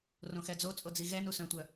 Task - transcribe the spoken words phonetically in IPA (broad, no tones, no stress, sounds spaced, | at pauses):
r õ x ɛ d͡z o t͡sʼ o d͡z i ɣ ɛ n u s œ̃ tʷ œ